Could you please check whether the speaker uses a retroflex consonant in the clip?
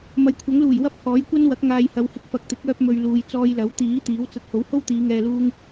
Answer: no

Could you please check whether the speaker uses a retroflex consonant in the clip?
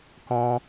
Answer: no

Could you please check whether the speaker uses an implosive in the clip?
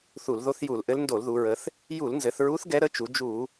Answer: no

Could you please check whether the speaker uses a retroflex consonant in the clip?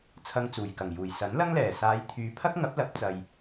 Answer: no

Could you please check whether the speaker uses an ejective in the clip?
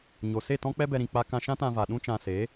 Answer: no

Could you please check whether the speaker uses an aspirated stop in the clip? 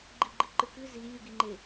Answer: no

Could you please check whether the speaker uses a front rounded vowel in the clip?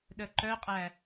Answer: yes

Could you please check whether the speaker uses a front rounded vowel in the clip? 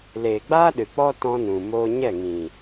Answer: no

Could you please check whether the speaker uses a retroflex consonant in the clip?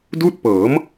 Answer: no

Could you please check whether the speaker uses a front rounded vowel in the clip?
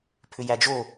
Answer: yes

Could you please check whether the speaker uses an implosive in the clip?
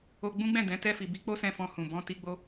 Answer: no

